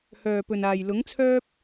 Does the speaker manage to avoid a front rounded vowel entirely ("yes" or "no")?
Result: no